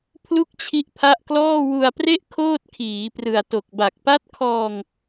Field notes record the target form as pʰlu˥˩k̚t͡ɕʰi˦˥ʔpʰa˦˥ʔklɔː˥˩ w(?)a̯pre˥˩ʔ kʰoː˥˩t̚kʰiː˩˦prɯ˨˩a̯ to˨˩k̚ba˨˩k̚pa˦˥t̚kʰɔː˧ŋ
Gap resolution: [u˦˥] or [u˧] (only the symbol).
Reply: u˧